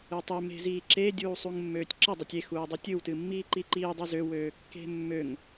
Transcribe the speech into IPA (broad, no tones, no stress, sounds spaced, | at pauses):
ɨ tˤ e m e̤ z iː ǁ e dʲ uː sˤ u ŋ mː øː tʲ ǁ ə dˤ e tʲ e x uː dˤ e tʲ ɨ w t ɨ mː iː ǃ i ǃ iː dˤ i z ø w øː kː e̤ mː ø ŋ